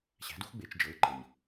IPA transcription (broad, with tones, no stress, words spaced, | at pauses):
ɕæ̤˩˥du˥x ɡ͡be˩˧t͡ʃd͡ʒɤ˩˥ɪ̯ǃɤ˩ɲ